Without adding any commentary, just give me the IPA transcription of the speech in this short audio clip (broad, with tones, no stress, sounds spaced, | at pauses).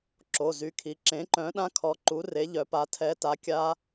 ǁ o˩˧˩ z y˨˥ kʰ i˩˧˩ ǁ ẽ˨˥ ǃ œ̃˨˥ ɗ ã˦˥ kʰ ɔ˨˥ ǃ u˨˥ r e˨˥ ʎ œ˨˥ p a˨˥ tʰ ɛ˨˥ t a˨˥ kʲ a˦˥